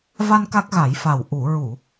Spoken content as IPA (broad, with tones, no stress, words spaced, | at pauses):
va˧n ka˦˥k̚ɣa˨˩˦jfa˨˩w ʔu˨˩˨ɹu˨˩˨